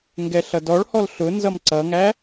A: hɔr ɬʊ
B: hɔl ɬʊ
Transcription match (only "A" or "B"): B